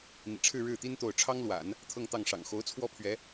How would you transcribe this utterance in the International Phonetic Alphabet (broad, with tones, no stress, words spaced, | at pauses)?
n̪ḭ˨˩ʈ͡ʂʰɻ̩˥˧ɻɻ̩˥˩t̪i˥n t̪o˥˩ʊ̯ ʈ͡ʂʰɑ˥ŋlwa̰˨˩˦n | t̪ʰɤ˥˧ŋt̪ɑ˥˩ŋʂɑ̰˨˩ŋ xo˧˥ʊ̯t͡sʰwɔ˥pʰɥɛ˧˥